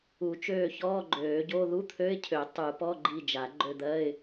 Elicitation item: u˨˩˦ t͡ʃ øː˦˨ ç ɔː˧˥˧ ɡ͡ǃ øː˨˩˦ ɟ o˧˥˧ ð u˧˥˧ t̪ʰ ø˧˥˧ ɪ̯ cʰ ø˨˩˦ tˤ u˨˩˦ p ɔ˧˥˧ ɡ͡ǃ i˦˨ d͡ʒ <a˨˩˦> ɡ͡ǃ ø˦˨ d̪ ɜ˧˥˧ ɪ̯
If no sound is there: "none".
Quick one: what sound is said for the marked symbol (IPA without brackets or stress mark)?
a˨˩˦